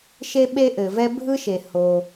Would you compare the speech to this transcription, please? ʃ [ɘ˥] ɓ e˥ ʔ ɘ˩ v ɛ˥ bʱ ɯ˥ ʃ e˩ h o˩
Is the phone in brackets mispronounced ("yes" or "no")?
yes